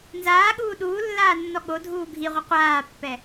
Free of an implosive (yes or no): no